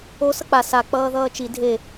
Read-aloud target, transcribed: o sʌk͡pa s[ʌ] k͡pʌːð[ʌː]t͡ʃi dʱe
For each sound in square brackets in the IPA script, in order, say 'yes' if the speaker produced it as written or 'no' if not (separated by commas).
no, yes